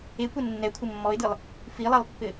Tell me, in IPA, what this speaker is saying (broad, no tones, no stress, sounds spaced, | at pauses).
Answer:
e kʷ ɘ nː ɛ kʷʰ ɘ mː ɔ ɪ̯ d ɯ lˠ | f i lˠ ɛ lˠ pː ɘ